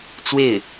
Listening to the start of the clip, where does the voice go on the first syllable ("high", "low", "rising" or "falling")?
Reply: falling